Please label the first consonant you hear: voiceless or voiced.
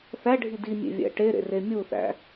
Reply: voiceless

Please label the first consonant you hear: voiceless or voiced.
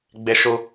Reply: voiced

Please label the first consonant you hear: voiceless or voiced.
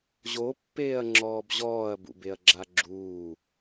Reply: voiced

